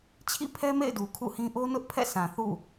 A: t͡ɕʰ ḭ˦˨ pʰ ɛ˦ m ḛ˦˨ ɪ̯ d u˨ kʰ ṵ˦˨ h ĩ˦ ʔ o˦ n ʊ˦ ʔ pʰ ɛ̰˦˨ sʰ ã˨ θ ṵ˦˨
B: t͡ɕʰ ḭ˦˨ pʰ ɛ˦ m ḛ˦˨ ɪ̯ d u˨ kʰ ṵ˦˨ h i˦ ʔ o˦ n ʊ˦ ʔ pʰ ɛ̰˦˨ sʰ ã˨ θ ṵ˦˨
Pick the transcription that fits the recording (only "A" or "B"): A